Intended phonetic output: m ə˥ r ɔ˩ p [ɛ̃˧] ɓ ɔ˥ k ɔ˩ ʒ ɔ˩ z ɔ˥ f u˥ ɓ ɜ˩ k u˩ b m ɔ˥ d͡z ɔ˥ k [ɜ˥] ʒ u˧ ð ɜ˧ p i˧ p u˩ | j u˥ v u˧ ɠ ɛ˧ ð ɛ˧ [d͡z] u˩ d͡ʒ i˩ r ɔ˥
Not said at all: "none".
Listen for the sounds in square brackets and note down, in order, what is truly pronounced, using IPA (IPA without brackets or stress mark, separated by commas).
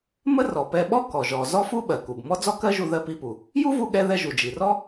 ɛ˧, ɜ˥, ʒ